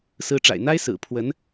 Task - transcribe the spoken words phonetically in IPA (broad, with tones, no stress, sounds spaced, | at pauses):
s ɹ̩˧˥ ʈ͡ʂ a̰˨˩ ɪ̯ n̪ a˥ ɪ̯ s ɹ̩˨˩ pʰ w ə˧˥ n